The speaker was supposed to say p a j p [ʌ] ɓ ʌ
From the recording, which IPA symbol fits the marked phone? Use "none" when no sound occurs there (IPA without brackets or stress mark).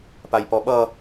ɔ